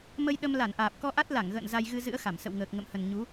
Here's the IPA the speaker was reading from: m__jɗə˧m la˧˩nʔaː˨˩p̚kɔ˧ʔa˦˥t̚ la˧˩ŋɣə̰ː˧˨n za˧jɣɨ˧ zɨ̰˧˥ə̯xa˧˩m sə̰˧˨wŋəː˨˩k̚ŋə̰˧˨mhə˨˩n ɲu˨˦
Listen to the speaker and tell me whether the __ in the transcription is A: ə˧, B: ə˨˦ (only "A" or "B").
A